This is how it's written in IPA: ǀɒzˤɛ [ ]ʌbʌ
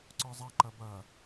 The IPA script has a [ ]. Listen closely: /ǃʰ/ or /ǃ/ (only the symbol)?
ǃ